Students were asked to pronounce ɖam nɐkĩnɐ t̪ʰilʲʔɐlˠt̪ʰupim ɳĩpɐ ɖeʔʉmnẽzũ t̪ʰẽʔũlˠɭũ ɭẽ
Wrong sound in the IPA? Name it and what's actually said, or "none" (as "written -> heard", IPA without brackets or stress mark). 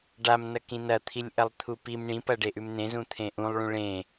none